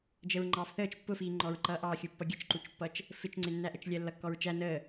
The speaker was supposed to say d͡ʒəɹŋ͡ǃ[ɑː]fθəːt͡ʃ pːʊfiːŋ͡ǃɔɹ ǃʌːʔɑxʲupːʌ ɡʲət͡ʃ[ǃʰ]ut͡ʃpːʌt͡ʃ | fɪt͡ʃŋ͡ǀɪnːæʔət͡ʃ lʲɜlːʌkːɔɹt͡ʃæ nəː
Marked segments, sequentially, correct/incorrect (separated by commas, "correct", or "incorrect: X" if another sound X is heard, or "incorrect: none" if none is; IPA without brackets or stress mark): correct, incorrect: ǃ